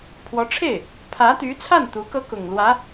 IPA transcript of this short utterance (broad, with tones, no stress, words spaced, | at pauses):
pʰwɔ˧˥ʈ͡ʂʰe˥˩ɪ̯ | pʰä˧˥t̪y˧˥t͡sʰa˥˩n t̪u˧˥kɤ˥kʊ˨˩ŋ lwä˧˥